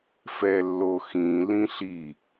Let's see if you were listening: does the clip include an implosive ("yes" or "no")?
no